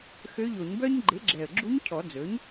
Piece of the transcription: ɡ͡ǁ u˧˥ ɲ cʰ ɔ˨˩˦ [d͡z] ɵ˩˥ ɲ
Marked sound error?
no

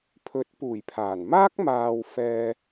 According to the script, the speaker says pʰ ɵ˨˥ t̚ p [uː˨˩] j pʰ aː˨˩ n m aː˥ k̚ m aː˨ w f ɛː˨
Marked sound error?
no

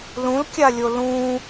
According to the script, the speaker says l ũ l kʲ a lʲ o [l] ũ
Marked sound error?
no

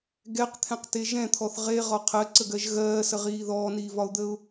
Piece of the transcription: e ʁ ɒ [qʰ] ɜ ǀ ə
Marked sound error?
no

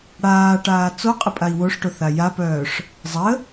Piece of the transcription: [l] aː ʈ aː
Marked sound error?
yes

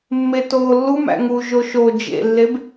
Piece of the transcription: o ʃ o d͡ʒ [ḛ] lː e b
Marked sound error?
no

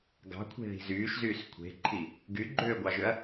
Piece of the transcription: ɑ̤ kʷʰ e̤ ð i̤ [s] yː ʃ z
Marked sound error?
yes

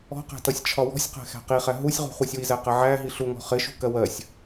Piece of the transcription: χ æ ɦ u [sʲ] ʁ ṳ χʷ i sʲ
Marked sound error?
no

